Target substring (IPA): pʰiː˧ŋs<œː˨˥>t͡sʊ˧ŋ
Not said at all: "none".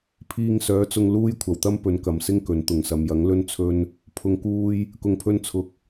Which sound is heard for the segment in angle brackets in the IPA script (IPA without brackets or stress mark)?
œː˨˥